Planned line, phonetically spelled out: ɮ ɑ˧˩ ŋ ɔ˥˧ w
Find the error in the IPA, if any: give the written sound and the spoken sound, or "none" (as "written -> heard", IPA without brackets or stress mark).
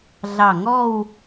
none